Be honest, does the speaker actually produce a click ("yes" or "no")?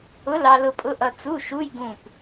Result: no